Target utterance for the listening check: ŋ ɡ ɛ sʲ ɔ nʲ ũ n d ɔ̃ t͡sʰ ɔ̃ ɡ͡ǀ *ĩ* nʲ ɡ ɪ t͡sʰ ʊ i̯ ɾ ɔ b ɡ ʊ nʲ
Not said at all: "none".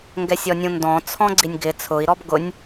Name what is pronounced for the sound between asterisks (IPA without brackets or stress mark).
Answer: i